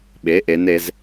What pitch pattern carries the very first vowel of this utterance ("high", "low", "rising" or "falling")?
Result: rising